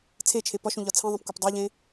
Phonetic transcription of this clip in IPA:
t͡sʰet͡ʃʰe pɒʃũʎɒ t͡sʰĩðˤĩpkʷep dˤeʎẽ

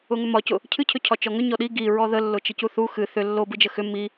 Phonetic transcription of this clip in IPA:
ʊŋʏmɒcʊ | cʰɨcʰʏcʰɒ t͡ʃɔŋʏ ɲɔɗi ɡi ɹɔðəlːʊ t͡ʃəcuθu xɨ θʏ lːobɨd͡ʒə xʏ mi

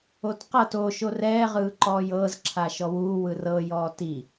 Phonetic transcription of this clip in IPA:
otqɤt o ʃorɛː ʁɯːǃɔːjɤːz ǁʰaʃɔwuː wɯrɤ jɔːti

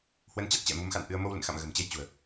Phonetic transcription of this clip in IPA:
hwə˨˦nt͡ɕa˦˥t̚t͡ɕɛ̰˧˨ mu˨˦mxa̰˧˨nʔɨ˧ə̯ mo˧wlə̰˧˨nxa̰˧˨m ɣə̤˨˩m t͡ɕe˧jt͡ɕṳ˨˩ə̯

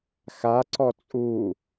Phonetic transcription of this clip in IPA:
xa ǀɔt͡sʼu

